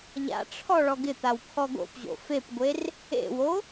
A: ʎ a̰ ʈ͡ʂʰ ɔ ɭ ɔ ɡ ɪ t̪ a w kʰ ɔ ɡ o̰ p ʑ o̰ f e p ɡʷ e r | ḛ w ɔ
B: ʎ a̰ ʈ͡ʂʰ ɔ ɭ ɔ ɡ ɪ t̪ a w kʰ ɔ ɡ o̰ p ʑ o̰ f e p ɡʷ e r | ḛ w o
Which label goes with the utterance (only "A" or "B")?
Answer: B